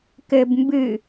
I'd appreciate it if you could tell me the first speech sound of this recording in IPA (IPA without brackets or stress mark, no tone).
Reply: k